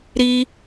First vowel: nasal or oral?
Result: oral